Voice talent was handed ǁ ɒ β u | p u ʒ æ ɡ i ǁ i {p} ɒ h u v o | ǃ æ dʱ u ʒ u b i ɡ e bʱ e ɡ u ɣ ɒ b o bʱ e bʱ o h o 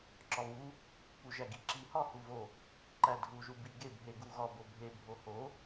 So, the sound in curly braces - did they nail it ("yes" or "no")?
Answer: no